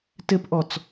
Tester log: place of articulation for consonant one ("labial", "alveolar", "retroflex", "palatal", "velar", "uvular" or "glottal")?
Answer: alveolar